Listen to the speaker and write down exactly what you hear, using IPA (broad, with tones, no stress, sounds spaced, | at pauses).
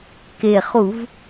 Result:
k e˨˩ χ u˧˩˧ v